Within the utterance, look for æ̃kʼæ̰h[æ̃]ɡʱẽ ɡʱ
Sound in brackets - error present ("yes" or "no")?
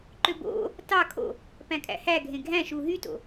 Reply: yes